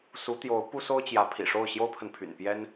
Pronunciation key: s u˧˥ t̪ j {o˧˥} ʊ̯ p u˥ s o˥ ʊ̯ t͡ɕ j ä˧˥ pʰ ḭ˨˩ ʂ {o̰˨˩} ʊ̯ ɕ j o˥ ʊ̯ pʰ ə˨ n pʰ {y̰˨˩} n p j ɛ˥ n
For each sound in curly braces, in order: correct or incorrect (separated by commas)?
correct, incorrect, correct